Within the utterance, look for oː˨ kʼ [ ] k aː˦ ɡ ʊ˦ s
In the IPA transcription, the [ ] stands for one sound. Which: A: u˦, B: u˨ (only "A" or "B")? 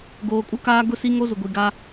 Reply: A